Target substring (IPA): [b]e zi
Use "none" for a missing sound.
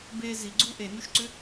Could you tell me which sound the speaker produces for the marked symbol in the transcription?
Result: b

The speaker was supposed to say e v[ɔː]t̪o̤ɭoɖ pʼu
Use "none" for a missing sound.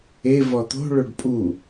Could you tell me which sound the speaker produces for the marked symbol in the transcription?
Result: ɔ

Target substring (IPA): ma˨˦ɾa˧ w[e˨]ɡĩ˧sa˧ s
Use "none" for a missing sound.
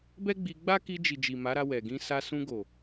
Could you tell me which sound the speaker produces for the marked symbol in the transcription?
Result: ɛ˨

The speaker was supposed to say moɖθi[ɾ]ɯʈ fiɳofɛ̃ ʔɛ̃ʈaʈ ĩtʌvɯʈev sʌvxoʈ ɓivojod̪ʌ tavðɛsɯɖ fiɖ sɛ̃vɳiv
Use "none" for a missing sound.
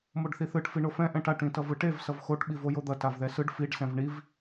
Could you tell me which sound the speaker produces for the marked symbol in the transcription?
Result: θ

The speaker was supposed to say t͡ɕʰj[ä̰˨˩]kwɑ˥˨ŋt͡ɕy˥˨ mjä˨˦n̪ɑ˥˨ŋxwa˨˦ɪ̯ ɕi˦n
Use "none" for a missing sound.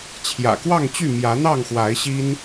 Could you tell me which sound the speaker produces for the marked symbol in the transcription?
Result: ä̰˨˩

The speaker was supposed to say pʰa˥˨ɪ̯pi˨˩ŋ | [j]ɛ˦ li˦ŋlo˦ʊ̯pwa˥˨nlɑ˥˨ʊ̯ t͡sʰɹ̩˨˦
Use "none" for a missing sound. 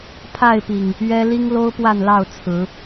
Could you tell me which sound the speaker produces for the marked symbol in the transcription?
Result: ɥ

